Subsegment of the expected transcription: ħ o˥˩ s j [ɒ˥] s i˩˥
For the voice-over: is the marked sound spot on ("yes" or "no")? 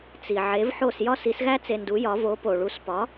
yes